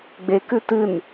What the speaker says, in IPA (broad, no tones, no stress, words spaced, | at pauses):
ɡ͡bekʉ tɨn